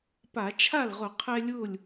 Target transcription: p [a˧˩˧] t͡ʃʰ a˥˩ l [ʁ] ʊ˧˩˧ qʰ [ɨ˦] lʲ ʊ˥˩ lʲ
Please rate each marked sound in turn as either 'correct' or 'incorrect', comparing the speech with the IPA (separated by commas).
correct, correct, incorrect